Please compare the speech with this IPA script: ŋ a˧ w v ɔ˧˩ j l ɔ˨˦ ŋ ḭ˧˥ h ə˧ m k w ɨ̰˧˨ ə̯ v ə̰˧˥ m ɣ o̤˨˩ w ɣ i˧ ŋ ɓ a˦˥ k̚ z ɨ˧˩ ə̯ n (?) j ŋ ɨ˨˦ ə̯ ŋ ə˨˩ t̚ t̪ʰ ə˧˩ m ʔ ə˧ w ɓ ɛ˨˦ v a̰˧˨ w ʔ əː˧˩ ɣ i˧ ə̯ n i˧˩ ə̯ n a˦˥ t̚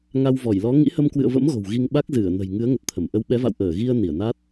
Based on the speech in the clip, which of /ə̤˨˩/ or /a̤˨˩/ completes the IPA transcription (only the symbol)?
ə̤˨˩